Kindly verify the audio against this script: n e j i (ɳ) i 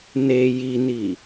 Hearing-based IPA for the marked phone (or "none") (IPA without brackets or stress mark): n